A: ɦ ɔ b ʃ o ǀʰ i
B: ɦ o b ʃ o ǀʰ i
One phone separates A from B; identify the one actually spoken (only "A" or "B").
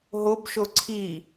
B